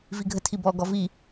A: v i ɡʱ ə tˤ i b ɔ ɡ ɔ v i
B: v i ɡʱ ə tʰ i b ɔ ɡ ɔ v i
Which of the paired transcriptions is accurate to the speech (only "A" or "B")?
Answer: B